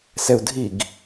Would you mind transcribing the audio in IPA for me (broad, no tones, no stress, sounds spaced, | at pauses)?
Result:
s ɛ u̯ dʱ i ɡ